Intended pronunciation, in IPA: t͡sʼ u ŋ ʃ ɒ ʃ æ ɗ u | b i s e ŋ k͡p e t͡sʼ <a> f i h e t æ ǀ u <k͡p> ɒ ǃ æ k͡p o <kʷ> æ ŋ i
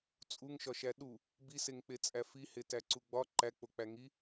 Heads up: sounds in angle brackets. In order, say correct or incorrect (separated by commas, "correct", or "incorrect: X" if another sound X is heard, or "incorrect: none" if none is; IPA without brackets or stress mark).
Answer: incorrect: æ, incorrect: ɡ͡b, incorrect: k͡p